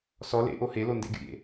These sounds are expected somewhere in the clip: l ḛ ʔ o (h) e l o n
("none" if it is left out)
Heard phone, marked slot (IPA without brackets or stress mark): h